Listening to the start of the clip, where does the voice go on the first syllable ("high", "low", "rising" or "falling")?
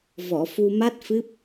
low